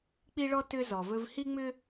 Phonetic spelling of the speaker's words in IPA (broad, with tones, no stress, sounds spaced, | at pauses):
k͡p i˦ ɭ ɔ˦ t ʏ˦ z ɔ˨ v ɵ˦ v h i˦ ŋ͡m ʏ˦